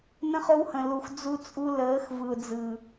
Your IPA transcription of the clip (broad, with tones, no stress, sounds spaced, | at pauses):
n ə̃˦ χ o˦ w h ə̃˨ l u˨ x d͡z u˦ t͡sʼ u˦ l əː˨˦ x v ɯ˨ ʊ̯ d͡z ɯ˨